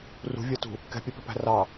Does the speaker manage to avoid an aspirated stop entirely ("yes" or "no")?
yes